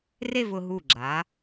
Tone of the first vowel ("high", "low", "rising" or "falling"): falling